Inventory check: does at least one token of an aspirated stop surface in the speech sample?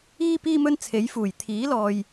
yes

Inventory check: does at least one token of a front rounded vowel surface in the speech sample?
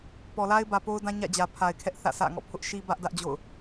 no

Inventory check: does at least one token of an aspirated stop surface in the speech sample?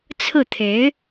yes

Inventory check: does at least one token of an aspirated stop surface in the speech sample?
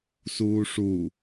no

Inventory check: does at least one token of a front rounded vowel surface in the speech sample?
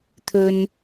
no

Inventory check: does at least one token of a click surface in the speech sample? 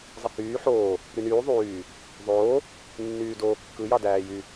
no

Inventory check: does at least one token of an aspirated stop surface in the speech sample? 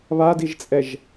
no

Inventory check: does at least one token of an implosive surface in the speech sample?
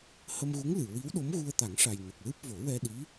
yes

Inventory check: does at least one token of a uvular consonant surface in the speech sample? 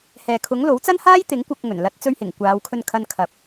no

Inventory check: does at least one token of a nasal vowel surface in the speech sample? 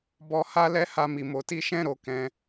yes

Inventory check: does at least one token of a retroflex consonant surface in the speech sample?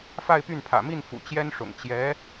yes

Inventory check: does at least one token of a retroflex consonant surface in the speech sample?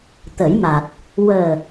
no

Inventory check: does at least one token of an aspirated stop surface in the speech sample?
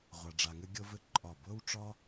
no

